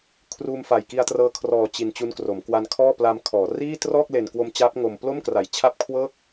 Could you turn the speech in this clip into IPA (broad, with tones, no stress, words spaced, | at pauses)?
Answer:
kʰruː˧mfa˨˩jki˧a̯trɤː˧ kʰrɔː˨˩t͡ɕi˨˩n t͡ɕu˧nkro˩˦m kwa˧nkʰɔː˥˩pla˧mkʰɔː˩˦ riː˥˩ trɔː˥˩k̚le˨˩nkwo˧mt͡ɕaː˦˥p̚ ŋo˧m plo˥˩mkra˨˩j t͡ɕʰa˦˥p̚ kʰwɤː˥˩k̚